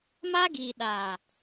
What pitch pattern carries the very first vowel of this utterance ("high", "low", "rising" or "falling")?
high